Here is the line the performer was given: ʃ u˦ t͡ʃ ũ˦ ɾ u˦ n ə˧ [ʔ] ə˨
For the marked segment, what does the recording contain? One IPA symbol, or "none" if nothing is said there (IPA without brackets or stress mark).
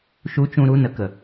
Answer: k